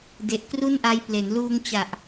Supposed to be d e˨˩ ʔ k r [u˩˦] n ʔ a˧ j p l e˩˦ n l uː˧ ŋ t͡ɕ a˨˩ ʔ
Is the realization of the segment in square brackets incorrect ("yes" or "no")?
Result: yes